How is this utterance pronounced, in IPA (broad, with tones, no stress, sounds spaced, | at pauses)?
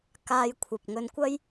k aː˧ j kʷʰ ɐ˨ p̚ ŋ ɵ˧ n kʷ ɐ˥ j